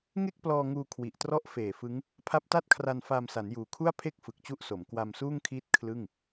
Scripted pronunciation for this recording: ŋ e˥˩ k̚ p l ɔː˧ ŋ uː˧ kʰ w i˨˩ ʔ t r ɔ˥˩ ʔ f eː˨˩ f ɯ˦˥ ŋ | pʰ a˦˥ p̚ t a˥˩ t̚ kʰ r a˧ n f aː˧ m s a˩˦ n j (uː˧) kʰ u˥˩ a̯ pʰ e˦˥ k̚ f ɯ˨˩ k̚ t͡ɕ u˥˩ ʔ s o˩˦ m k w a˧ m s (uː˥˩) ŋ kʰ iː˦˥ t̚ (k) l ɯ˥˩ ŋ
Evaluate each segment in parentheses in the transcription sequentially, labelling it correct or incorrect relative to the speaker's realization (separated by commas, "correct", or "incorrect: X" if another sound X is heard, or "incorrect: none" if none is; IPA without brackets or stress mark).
incorrect: uː˩˦, correct, incorrect: kʰ